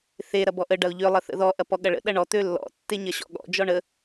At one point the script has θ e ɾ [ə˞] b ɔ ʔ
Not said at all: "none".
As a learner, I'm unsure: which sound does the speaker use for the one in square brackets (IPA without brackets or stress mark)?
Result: ɐ